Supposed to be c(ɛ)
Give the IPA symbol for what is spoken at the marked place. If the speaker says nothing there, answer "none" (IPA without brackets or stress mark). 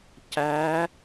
æ